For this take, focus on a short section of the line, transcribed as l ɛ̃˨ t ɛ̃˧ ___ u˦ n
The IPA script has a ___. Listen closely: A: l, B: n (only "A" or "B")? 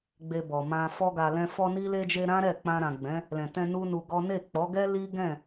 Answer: B